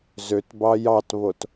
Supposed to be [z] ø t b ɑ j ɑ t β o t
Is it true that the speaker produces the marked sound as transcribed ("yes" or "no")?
yes